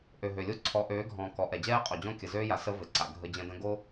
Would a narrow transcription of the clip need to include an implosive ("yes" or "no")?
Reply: no